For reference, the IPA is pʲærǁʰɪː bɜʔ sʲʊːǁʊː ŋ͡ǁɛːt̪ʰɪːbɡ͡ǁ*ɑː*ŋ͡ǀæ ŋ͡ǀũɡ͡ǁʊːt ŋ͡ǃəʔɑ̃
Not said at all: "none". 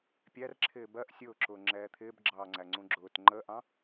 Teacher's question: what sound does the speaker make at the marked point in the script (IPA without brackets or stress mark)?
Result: ɑː